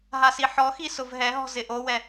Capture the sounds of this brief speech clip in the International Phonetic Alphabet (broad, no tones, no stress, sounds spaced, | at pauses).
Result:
ɦ a s i ħ ɔ x i s ʊ v ɦ ɛ ɦ ɔ̤ z ɪ ʔ o w ɛ